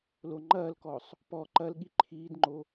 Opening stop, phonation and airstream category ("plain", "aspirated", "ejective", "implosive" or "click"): click